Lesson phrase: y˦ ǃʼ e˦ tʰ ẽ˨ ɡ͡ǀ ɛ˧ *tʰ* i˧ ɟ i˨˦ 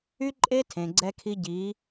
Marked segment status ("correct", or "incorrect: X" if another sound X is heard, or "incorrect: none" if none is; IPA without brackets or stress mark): incorrect: kʰ